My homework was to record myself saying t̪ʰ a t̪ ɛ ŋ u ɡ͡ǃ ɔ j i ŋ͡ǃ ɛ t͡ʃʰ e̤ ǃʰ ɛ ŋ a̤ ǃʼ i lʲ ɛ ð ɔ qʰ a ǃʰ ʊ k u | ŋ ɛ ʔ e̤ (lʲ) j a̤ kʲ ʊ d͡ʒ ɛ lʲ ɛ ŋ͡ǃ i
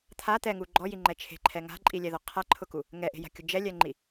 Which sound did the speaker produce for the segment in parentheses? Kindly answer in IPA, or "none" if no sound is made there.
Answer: none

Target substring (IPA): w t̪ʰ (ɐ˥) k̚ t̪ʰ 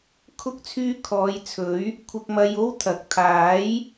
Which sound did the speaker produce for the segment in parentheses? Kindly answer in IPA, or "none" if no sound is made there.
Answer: ɐ˨˥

